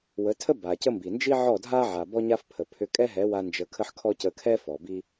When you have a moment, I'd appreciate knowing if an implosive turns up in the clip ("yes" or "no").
no